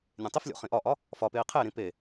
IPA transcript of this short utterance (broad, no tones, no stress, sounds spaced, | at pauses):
nʲ ẽ tˤ i f lʲ o̰ χ ĩ ʔ ɒ ʔ ɒ | f ɒ p e i̯ qʰ e ɾ ĩ p e